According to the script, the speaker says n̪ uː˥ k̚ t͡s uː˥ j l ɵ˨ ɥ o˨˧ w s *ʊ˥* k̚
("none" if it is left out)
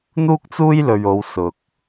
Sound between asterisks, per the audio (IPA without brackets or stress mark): ʊ˨